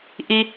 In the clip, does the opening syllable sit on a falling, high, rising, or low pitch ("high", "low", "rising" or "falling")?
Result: high